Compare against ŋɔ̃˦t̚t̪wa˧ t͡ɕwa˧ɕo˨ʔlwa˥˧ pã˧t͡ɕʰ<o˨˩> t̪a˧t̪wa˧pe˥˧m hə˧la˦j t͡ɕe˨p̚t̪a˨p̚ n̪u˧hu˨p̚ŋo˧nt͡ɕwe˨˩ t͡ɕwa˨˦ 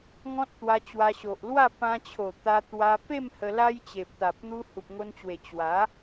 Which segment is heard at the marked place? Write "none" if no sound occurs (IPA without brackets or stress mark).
o˨˩